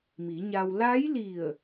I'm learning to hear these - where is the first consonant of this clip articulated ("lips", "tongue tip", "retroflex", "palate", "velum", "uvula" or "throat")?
lips